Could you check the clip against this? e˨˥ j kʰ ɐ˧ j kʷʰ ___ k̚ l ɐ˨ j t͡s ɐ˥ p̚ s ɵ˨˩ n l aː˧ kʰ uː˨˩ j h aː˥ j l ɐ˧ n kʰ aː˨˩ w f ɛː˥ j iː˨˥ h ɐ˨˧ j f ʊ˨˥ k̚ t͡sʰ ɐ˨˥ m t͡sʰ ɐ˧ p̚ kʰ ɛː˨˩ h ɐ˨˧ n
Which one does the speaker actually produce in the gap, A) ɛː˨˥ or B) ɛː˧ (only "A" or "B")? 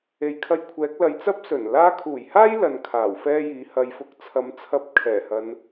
A